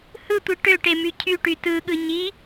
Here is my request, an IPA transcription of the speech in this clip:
h ɯ tʷ ɯ ʈ ø ʈ e m y cʰ y ʈ y t ɯ ɠ ɯ ɲ i

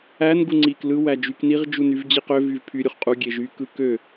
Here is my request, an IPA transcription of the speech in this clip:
æ n ɡ u ŋ͡ǀ iː k l ɯ w æ d͡ʒ y k n i ʁ d͡ʒ u n y v d͡ʑ i q ø v y v pʰ y ɾʲ u χ qʼ u ɡʲ e ʒ y k ɯ k ø

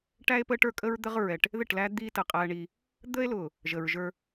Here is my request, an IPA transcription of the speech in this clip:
ʈ æ˦ e̯ p əː˦ ʈ ə˞˦ kʼ ə˦ ɹ d̪ ə˦ ʁ ɹ ɛ˨ ʈ | ð ɪ˦˨ ʈ l æ˦ d̪ iː˦ t ə˨ qʼ æː˦ ɳ iː˦ | d̪ əː˦ e̯ l ʊː˨ | ʒ əː˨ ɹ ʒ ə˞˦

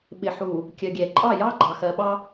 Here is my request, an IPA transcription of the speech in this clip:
ɓ ɪ˨ ħ u˨ | kʲ ɜ˨ ɡʲ ɛ˨ ǃʼ ɑ˦˨ j ɑ˦ ɡ͡ǃ ɑ˨ x ɜ˨ ɓ ɑ˦

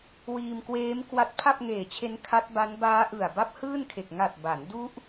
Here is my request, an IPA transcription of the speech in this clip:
w iː˧ m k w eː˦˥ m k w a˦˥ t̚ pʰ a˥˩ p̚ ŋ eː˨˩ t͡ɕʰ e˦˥ n kʰ a˦˥ t̚ b a˦˥ n b aː˦˥ ʔ ɯ˨˩ a̯ b a˦˥ p̚ h ɯː˥˩ n kʰ e˨˩ k̚ ŋ a˨˩ t̚ b a˩˦ n d u˦˥ ʔ

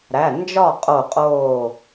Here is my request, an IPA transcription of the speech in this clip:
ɾ æ˩˧˩ n d͡ʒ ɒ˥˨ qʼ o˧˩ qʼ oː˧˩

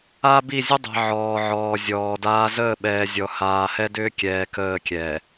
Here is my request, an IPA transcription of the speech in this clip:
a˦ b i˦˨ zʲ ə˦ dˤ ɛ̤˨ ʕ ɔː˨ ʕ ɔː˨ zʲ ɔː˨ d aː˦ z əː˦˨ ɓ ɛː˨ zʲ ɔ˨ h aː˨ h ɛ˦ d ʏː˦ kʲ ɛː˨ k əː˦˨ kʲ ɛː˨

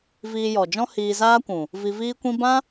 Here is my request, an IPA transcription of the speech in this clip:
v iː˧ j ɔ˨ d͡ʒ ɔ̃˦ h iː˧ z aː˦ kʷ ũ˨ | v i˧ v iː˦ kʷ ĩ˦ b ã˦

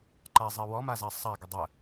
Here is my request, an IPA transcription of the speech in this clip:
ǃ a zˤ ɛ w ɔ m a z a sˤ a ɡ ə dˤ ə

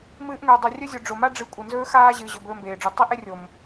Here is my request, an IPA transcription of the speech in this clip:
m ɨː˧ ʔ ŋ ɵː˨ dˤ ʉ˨ rʲ ɵ˦ zʲ o˨ ɖ͡ʐ o˨ m a˦ ɖ͡ʐ ɨ˨˦ kʷʼ ɨ˨ n z ɵː˦ x aː˦ ʑ ɨː˨ ʑ ɵ˨ b ɵː˧ m b eː˨ ɖ͡ʐ u˨ tˤ i˦ ʔ e˦ rʲ o˨ m

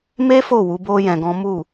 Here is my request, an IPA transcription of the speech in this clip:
m e˦ f o˦˨ w u˨˦ b o˦ j ɛ̃˧ ɡ ɔ̃˦ m u˦˨

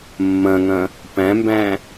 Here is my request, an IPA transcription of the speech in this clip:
mː ɐ̃ ŋ ɐ̃ | p æ̃ m b æ̃

